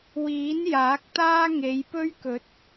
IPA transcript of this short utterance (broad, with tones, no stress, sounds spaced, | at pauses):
w iː˨˥ n j aː˨˥ k̚ t̪ aː˥ ŋ e˨˧ j p ɵ˥ ɥ k ɵ˨˥ t̚